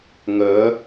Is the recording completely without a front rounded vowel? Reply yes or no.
no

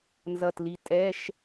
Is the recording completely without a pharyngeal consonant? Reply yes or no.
yes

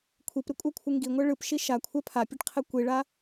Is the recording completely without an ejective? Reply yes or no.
no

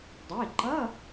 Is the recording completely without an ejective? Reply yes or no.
yes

